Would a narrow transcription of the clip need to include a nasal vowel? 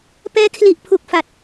no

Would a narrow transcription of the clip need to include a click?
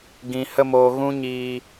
no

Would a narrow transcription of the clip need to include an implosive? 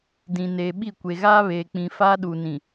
yes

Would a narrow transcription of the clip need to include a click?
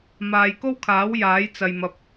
no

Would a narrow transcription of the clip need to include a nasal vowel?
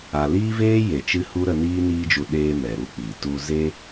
no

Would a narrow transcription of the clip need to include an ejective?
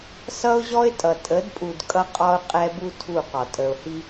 yes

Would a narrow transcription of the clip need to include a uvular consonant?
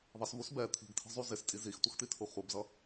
yes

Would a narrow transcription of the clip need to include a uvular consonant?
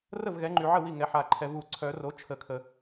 no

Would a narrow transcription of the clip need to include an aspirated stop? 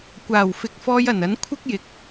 yes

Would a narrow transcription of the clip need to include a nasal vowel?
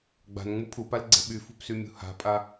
no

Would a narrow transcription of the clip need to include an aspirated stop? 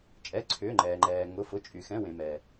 yes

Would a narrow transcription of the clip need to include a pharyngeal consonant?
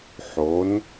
yes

